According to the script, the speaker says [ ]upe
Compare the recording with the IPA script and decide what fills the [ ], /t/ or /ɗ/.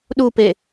ɗ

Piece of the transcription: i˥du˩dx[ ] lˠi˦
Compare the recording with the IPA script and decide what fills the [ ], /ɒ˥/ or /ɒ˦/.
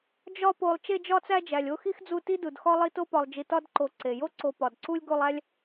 ɒ˥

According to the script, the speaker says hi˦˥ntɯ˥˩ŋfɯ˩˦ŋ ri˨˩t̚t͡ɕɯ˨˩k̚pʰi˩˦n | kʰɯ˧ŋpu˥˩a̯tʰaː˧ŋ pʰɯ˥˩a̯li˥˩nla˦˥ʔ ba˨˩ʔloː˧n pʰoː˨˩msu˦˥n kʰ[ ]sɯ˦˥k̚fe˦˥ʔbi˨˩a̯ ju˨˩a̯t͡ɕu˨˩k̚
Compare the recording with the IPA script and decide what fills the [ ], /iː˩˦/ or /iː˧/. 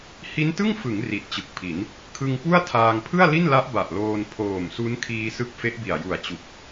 iː˧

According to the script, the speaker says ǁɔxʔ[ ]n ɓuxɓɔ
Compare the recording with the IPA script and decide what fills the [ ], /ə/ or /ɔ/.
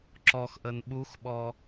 ə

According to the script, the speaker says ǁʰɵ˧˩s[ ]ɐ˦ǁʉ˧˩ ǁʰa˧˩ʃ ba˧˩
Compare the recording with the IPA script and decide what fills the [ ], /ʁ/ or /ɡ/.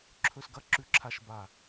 ɡ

